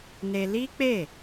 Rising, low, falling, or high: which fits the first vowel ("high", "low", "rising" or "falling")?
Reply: high